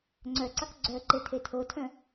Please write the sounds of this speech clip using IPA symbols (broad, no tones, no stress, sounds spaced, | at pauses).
ŋ͡ǀ œ ǀ ɑ k ɡ͡ǀ œ ǃ e tʰ e tʰ o tʰ œ̃